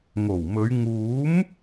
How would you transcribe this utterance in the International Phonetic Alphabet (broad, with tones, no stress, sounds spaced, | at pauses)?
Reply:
ŋ o˨˩ w m ɵ˨˧ ɥ ŋ uː˨˥ m